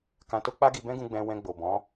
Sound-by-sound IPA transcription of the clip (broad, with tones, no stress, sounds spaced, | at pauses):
k ã˧ t o˦ k͡p a˦ ɡ i˧ b ɛ̃˦ ɡ ũ˧ ɡ͡b ɛ̃˧ w ɛ̃˧ ɡ͡b o˨ b ɔ̃˨˦